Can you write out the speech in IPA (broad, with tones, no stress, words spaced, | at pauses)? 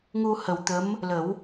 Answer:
ŋu˧hə˨˩wt̪ə˧˥m | lə˨˩˦w